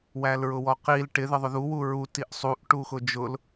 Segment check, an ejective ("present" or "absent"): absent